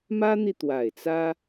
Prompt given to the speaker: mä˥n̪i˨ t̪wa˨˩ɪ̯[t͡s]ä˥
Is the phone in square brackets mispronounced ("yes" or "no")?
no